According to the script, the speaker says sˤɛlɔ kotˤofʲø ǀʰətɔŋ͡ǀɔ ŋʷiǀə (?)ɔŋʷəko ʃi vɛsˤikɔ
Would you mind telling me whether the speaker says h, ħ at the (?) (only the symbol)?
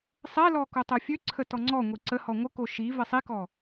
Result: h